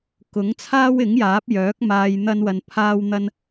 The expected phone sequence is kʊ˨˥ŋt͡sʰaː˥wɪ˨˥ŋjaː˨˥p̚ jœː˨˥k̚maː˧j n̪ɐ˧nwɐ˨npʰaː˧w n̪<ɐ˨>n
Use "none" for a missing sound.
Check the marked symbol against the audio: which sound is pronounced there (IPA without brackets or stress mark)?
ɐ˧